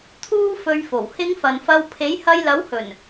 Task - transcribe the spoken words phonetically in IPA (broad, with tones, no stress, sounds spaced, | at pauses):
t̪ʰ uː˥ f ɵ˧ ɥ f o˨˩ w h ɪ˨˧ ŋ f ɐ˨ n f ɐ˧ w pʰ e˨˥ j h ɐ˧ j l ɐ˨˥ w h ɵ˨˩ n